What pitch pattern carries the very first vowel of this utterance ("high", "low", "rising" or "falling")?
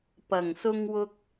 low